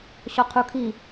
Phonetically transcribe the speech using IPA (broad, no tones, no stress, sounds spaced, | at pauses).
ɕ ɔ qʰ u kʰ i